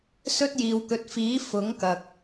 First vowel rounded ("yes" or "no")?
yes